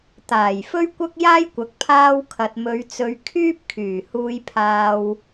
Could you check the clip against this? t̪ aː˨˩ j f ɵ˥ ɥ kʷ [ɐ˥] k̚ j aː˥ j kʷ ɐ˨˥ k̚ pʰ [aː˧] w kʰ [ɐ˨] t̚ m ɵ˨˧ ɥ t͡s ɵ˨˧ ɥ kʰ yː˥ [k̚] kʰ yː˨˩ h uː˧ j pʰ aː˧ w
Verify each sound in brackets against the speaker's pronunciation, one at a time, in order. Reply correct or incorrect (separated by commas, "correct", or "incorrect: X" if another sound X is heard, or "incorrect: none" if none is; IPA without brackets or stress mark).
correct, correct, correct, incorrect: p̚